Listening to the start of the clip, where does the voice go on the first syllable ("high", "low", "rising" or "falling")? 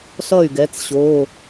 falling